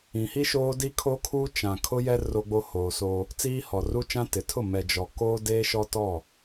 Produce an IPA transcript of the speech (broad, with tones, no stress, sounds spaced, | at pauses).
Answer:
ĩ˨ h i˦ ʃ oː˦ d i˦ kʰ o˦ kʰ uː˦ t͡ʃ ã˨ kʰ ʊ˦ j ɛ˦ r o˦ ɡ͡b o˦ h oː˨ s o˦ | t͡s iː˦ h ɔ˨ r u˦ t͡ʃ ã˦ t ɪ˨ tʰ ʊ˦˨ m ɛ˨ d͡ʒ ɔ˨ k oː˦ d e˦ ʃ ɔ˦ t ɔ˦˨